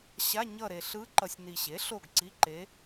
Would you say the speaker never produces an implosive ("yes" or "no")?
yes